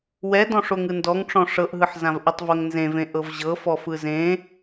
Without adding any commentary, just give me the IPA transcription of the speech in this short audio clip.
w ɛ d ɔ̃ ʂ o ŋ ɯ n d ɔ ŋ ʈ͡ʂ ɔ̃ ʂ ɤ ʔ ɦ ɯ ħ z ã v ʔ ɯ tˤ v ɤ ŋ n z ẽ v ẽ ʔ ɤ v ʑ ɤ f ɔ f ɯ z ẽ

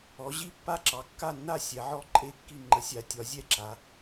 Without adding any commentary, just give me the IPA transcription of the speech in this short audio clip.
ɔ˨˦ ʑ i˥˨ pː a˥˨ ǁ ɑ˨˦ kː a˥˨ nː a˥˨ sʲ ɛ˨˦ ʕ ɔ˥˨ ǃʼ e˥˨ kː i˥˨ ŋ͡ǃ ə˨˦ sʲ a˨˦ tʲ ɒ˨˦ zʲ ɛ˥˨ ǁ a˨˦

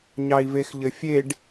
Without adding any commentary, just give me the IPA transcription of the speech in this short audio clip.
ɲ ɑ i̯ v e x ʎ ɘ fʲ e ɖ

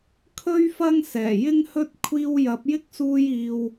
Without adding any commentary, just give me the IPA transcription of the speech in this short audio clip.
kʰ ɵ˥ ɥ f ɐ˥ ŋ s ɛː˨˩ j ɪ˥ ŋ h ɵ˥ t̚ kʷʰ iː˥ w j ɐ˨˥ p̚ j ɪ˥ k̚ s uː˧ j iː˨ w

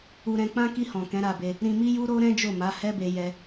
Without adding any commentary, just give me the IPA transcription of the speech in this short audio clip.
u˧ ɾ ɛ̃˧ k͡p ã˦ k i˧ h ɔ̃˨ k ɛ̃˨˦ ɾ a˧ b e˧ | ɾ ĩ˧ m i˦ j u˦ ɾ o˦ ɾ ɛ̃˦ d͡ʒ o˦˨ m a˨˦ h ɛ˦ b e˧ j ɛ˧

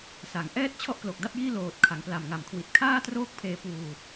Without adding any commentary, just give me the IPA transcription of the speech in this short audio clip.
s a˩˦ ŋ ʔ ɛː˦˥ t̚ t͡ɕʰ ɔ˥˩ ʔ k l o˨˩ k̚ d a˥˩ p̚ j iː˥˩ l oː˨˩ t̚ kʰ a˩˦ ŋ p l a˨˩ m ŋ a˨˩ m kʰ w i˨˩ t̚ kʰ aː˥˩ t r oː˥˩ k̚ pʰ eː˧ p uː˧

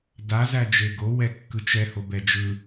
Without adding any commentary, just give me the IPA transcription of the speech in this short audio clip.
d a z æ d͡ʒ e ɡ o w ɛ kː ɯ t͡ʃ ɛ h o b ɛ d͡ʒ ɯ

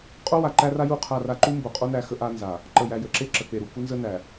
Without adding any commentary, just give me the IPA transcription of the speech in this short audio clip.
qʼ o˦ w a˨ ǃ æ˦ r a˦ j u˦˨ qʰ a˦˨ r a˦ ǃ u˦ m b o˨ qʼ o˦ n æ˦ x ə˦ ʔ a˦ n z a˨ | ǃ ə˨ j æ˨ j ə˨ ǁ e˦ ǁ ə˨ k͡p e˨ ɾ u˨ k u˦ n z ə˦ n æ˨

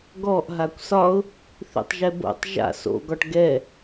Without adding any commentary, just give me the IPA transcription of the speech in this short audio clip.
ɡ ɔ ʔ ɦ a kʷ s ɒ ʊ̯ | θ ḭ tˤ ʒ ɛ b o̰ tˤ ʒ a̰ s o̰ ɡ ɒ ʈ ɡ ɛ

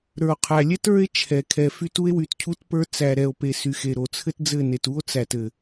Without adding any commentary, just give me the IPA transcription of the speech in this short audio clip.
ɾ ə˞˨ o̯ qʰ æ˨ lʲ ɛ˦ t ə˞˦ e̯ t͡ʃʰ ɛ˨ kʰ ɛ˨ f y˦ t u˦ e̯ w y˨ t cʰ u˦ t p ə˞˦ t͡s æ˨ ɾ ɛ˨ o̯ p e˨ s y˨ x e˨ ɾ o˨ t͡sʰ ɘ˦ t d͡z ɘ˦˨ n e˨ t u˦ o̯ t͡s æ˨ t ɘ˨

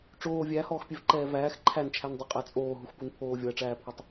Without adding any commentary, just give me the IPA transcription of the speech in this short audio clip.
ʈ͡ʂ oː vʲ æ h ɔː x pʲ ɛ v ǃ ɛː v æː x ǃʰ æ n t͡ʃʰ æ n dˤ ə qʼ æ t͡sʼ oː ɦ u x p u n pʰ oː vʲ ɔ ɐ̯ ʈ͡ʂ æː pʰ ɔ tˤ

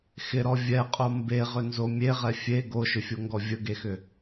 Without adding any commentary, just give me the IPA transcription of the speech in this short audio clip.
x ɪ ɾ ɔ vʲ ɛ qʼ o m b e ʁ ʏ n z o mʲ e ʁ ɛ fʲ e ɡ o ʃ ʏ fʲ o ŋ ɡ ɔ vʲ ə ɡ e x ʏ

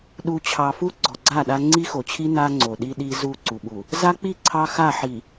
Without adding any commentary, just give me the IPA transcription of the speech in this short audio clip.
ɗ u˨ t͡ɕʰ ɑ˨ f u˦ ɡ͡ǀ ɔ˨ ɡ͡ǀ a˦˨ ɗ a˦ ŋ͡ǀ i˦ x o˨ t͡ɕʰ i˦ n a˦ ŋ͡ǀ o˨ ɗ i˦ ɗ i˦ z u˦˨ ǀ u˨ ɓ u˨ | z a˦ k͡p i˦˨ ǀʰ ɑ˦ x a˦˨ ħ i˨

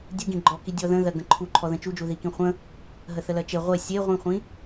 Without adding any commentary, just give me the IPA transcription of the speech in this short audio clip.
dʲ u ɡ ĩ ɡ͡ǃ ɔ k i dʲ ɔ ð ə̃ ð ɜ ɡ ə̃ ǃʰ u ǃʰ ɔ ð ə̃ t͡ʃ u d͡ʒ u ð i k ĩ χʷ ə̃ | ɦ ə θ ə l ɜ t͡ʃ e ʁʷ e sʲ e ʁʷ ĩ χʷ ĩ

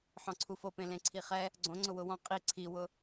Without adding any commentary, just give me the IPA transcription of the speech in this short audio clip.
ħ ɔ̃ ǀʰ u f o p ẽ l ẽ ǀʰ i χ ɛ | ɡ͡ǀ õ ŋ͡ǀ ʊ w ʊ w ɔ̃ qʼ i ǀʰ i w ʊ

